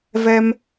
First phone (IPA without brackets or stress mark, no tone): v